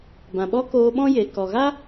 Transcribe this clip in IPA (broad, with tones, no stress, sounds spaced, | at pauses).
b ã˨ ɓ ɔ˦ k oː˧ ɓ ɔ̃˦ j e˨ k ɔ˨ ɣ a˦